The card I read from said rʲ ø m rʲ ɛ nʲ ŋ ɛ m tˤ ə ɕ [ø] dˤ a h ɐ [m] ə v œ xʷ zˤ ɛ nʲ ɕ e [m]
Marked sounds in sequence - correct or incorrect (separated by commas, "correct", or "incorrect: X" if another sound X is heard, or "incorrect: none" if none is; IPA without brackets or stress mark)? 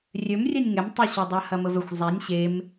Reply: correct, correct, correct